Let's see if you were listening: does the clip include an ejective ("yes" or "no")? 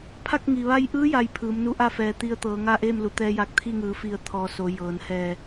no